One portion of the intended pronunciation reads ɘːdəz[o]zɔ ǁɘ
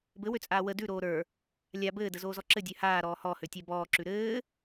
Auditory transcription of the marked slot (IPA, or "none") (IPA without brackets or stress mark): oː